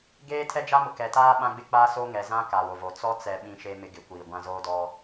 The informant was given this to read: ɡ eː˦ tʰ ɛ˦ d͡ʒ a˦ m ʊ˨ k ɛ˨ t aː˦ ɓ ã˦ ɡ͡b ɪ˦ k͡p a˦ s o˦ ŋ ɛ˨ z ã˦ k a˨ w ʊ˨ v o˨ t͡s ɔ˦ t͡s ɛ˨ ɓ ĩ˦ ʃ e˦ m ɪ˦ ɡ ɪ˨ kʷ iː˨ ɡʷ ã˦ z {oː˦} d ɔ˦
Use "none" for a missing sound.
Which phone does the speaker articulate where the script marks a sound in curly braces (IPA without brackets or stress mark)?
oː˦